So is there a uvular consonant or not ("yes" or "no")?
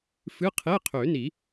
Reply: yes